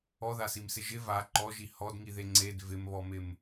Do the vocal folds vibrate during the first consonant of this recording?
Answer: yes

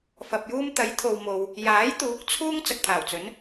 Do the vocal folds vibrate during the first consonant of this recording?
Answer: no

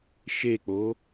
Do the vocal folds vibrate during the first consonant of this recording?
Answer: no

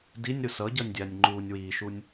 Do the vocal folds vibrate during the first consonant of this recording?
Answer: yes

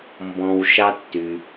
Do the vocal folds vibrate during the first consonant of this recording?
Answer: yes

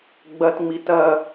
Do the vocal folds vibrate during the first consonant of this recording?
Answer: yes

